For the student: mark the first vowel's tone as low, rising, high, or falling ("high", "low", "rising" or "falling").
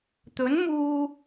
rising